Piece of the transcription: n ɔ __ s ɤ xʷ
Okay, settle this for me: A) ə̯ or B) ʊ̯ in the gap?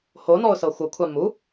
B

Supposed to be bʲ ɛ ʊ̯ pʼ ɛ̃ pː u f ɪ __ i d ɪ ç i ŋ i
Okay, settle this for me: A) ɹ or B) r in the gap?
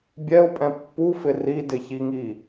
B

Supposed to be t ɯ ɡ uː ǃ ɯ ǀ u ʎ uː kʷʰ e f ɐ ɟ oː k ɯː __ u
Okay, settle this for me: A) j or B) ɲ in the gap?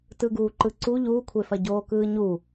B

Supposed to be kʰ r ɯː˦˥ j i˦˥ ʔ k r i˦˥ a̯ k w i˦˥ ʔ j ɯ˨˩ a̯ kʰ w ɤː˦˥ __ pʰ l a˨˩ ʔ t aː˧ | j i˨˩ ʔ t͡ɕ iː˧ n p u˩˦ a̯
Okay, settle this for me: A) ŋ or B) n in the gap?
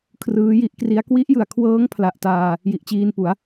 A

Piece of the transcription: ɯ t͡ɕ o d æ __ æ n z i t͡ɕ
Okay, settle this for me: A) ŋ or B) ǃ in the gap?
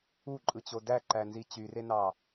B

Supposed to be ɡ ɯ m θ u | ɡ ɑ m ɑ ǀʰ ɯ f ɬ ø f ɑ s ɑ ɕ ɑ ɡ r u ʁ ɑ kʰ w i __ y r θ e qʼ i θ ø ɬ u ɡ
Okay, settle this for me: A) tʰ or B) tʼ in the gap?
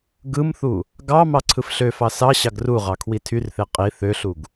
A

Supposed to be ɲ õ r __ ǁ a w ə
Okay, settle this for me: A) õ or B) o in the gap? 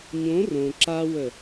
A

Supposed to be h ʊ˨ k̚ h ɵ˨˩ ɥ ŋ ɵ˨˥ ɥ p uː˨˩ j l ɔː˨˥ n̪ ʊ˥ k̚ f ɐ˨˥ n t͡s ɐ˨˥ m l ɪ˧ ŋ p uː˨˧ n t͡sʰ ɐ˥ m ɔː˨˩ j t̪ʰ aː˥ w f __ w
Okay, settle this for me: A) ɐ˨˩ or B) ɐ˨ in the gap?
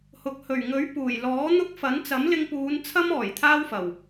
A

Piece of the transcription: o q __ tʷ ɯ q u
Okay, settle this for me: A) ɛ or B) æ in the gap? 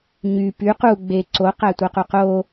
B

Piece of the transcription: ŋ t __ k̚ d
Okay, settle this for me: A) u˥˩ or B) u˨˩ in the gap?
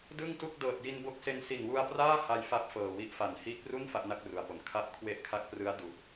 A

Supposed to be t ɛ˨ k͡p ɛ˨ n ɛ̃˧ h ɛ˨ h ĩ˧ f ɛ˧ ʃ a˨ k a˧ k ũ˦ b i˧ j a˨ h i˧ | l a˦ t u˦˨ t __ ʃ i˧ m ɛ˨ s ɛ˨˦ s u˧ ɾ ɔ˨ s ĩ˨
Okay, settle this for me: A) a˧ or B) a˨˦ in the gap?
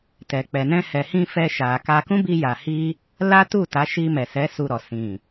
B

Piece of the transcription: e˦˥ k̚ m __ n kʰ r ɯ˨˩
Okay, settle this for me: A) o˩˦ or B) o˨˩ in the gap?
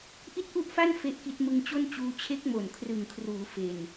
B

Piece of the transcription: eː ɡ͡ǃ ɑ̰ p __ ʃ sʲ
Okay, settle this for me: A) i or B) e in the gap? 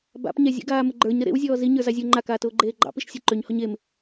A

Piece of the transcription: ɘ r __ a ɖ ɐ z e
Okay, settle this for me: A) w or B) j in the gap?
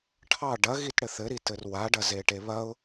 A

